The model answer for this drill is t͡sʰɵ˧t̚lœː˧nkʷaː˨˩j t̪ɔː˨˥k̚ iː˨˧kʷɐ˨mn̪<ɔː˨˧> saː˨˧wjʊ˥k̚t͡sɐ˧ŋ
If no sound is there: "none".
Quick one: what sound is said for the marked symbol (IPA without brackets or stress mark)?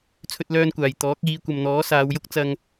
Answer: ɔː˨˥